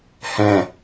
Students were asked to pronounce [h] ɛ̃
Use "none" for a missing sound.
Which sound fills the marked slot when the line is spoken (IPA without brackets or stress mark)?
h